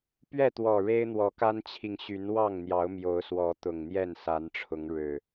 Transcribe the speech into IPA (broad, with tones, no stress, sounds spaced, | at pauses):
p ɥ ɛ˥˨ t̪ w ɔ˨˩ ɻ e˦ ɪ̯ n̪ w ɔ˨˦ k a˦ n t͡ɕʰ i˨ ŋ ɕ y˨˦ n w ɑ˥˨ ŋ n̪ j ɑ˨˦ ʊ̯ m j o˨˦ ʊ̯ s w ɔ˨˦ t̪ ʊ˨˩ ŋ n̪ j ɛ˥˨ n s a˨˦ n ʈ͡ʂʰ ʊ˨˦ ŋ ɻ ɻ̩˨˩